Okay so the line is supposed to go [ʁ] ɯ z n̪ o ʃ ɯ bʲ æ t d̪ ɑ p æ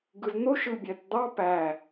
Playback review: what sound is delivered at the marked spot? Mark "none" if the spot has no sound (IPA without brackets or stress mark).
ɡ